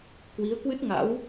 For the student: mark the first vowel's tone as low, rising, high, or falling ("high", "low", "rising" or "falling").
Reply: rising